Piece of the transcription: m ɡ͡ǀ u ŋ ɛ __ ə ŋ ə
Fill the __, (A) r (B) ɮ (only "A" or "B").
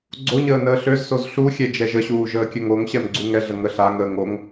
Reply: B